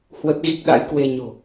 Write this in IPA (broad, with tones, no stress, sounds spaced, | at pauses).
h w ə˦˥ t̚ ɣ i˦˥ k̚ ɗ a̰˧˥ j k w e˧ ɲ o̤˨˩